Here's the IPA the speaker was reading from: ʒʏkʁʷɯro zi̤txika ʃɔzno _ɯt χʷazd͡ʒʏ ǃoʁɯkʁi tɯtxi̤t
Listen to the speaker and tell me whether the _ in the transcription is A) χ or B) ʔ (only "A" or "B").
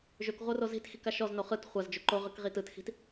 A